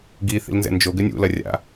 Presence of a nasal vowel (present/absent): absent